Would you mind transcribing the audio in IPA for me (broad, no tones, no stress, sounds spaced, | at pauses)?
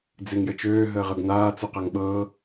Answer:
d͡z e ŋ j ə t͡ʃ øː ɦ əː ʁ ɤ ɡ n aː t͡s u q a ŋ ɓ ɤː